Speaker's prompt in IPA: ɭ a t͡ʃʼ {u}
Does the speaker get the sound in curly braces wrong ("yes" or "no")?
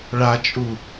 no